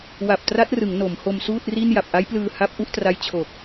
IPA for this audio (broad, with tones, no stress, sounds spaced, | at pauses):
w a˨˩ p̚ t r a˦˥ t̚ r ɯ˩˦ ŋ n o˩˦ m h o˧ m s uː˥˩ t̚ r i˥˩ n j a˨˩ p̚ ʔ a˦˥ j p l ɯː˧ h a˦˥ p̚ ʔ u˥˩ ʔ t r a˦˥ j t͡ɕʰ o˨˩ k̚